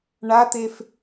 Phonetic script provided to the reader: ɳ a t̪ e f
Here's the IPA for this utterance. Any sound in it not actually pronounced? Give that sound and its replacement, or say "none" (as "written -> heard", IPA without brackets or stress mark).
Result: none